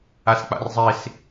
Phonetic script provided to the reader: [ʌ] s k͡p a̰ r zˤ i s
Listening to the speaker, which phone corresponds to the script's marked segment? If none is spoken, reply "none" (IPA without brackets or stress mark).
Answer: a